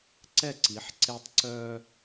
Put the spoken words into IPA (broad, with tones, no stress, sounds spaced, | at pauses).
ǀ ɛ˦˨ ǀ i˨˦ ħ ǀ e˦ tˤ ǀ œ˦